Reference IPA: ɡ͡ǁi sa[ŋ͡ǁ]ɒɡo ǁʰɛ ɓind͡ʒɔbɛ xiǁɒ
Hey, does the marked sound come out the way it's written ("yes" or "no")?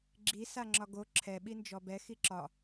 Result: yes